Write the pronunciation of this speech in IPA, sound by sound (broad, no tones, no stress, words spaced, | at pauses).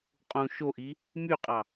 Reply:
qʼũ ʃoʔi | myqʼɑ